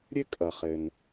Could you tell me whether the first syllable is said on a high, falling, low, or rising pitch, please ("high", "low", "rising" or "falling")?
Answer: high